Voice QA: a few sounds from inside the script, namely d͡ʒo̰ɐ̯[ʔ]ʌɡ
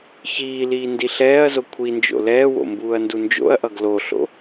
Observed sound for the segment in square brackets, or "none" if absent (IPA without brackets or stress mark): ʔ